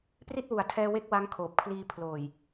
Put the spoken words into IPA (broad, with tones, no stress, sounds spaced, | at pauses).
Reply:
p r i˥˩ t̚ w u˩˦ a̯ tʰ ɛː˧ w e˥˩ k̚ w a˦˥ ŋ kʰ oː˨˩ p̚ kʰ l iː˧ pʰ l oː˨˩ j